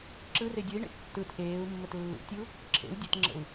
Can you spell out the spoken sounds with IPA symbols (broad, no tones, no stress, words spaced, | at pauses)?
ǁɯre dʲɯi̯ɳḛ tːɯt ʔeːu̯mːət lːṵtʲu | ǁʰḛu̯ dʲətŋ͡ǁə̰u̯